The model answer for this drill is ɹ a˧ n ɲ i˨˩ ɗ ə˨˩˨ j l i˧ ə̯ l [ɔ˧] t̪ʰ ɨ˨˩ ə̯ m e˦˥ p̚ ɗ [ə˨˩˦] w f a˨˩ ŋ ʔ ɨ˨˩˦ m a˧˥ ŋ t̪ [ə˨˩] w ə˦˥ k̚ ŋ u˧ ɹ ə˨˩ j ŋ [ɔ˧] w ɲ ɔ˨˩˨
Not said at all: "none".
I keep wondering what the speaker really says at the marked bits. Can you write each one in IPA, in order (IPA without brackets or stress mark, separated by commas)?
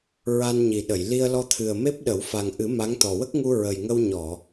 ɔ˧, ə˨˩˦, ɔ˨˩, ə˧